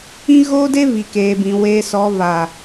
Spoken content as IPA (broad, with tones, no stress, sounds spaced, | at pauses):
ĩ˦ ɣ oː˦ d e˦ v i˨ k eː˨ b ĩ˨ w e˨ s ɔ˨ v a˨